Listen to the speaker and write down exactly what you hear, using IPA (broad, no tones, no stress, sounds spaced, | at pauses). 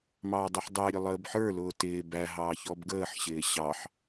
m ɑː dˤ i ħ dˤ ɪː ɾʲ ʊ lˠ əː b ħ ə˞ l ʊː t ɪː b æ ɦ ɑː ç ɔ b ɡ əː ħ ɕ ɪː ɕ ɑ ħ